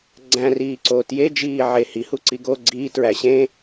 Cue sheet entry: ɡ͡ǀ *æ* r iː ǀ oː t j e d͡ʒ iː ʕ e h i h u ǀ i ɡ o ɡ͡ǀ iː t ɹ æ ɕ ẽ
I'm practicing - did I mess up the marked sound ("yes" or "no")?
yes